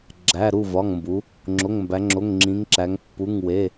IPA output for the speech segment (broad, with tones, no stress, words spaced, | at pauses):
ɡ͡ǁæ˩˧˩ɾu˥˩vɒ˩˧˩ŋmbu˩˧ | ŋ͡ǁo˩˧˩ŋmbæ˩˧ŋ͡ǁo˩˧˩ŋ ŋ͡ǁĩ˩˧ŋǁæ˩˧ŋ pːu˩˧˩ŋwe˩˧˩